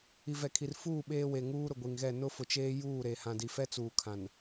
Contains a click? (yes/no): no